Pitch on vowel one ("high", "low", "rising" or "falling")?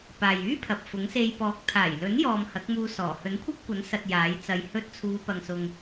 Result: low